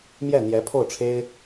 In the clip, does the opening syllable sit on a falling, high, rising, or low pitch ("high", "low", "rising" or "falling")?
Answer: falling